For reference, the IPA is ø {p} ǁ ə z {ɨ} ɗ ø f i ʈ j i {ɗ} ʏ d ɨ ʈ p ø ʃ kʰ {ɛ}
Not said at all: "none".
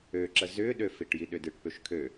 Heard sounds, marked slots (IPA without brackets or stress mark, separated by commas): none, ʏ, ɗ, ø